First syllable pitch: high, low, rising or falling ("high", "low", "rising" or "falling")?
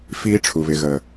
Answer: high